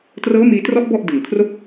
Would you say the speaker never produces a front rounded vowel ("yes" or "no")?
yes